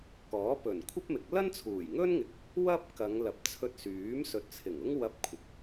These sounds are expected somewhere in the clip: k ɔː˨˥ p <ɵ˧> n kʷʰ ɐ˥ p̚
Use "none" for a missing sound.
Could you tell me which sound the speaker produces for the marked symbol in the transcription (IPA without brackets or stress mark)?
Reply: ɵ˨˩